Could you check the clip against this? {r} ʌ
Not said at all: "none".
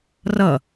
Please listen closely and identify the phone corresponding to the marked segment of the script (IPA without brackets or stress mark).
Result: r